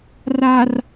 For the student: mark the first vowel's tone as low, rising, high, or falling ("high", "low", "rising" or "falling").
low